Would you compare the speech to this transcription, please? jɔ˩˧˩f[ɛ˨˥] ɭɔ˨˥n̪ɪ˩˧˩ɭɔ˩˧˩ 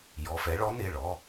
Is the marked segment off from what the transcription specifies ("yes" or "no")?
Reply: no